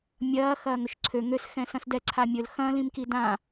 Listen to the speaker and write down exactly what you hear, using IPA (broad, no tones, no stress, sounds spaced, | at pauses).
mʲ ɐː x ɐː ŋ ɵ ʃ ǀʰ ø ŋ ø s x ɛ̃ s ɐ̃ s d ɛ ǀʰ a mʲ ɵ l x ɐ̃ l ĩ m k i d ã